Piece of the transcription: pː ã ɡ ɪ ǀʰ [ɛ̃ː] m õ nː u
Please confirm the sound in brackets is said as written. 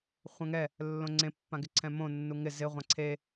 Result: no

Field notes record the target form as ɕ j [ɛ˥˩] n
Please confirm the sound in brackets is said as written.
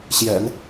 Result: no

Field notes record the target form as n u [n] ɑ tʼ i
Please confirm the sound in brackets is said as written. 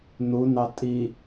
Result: yes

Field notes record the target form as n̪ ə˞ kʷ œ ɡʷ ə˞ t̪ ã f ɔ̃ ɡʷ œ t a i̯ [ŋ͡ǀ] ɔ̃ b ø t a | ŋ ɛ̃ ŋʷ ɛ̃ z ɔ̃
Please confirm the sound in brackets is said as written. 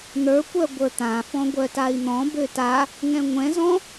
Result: no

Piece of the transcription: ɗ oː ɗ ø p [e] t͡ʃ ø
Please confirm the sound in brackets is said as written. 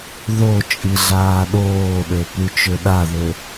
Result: no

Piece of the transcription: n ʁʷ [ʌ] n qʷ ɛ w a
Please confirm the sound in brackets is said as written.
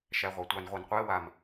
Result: no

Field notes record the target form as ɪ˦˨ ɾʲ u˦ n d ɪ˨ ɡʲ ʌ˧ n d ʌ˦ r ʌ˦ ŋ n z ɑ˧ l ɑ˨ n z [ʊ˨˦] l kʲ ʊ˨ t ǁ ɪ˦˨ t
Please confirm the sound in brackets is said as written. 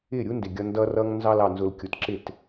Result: no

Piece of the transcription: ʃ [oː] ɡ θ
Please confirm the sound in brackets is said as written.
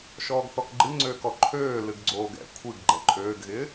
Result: no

